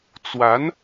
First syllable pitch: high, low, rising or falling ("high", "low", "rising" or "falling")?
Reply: rising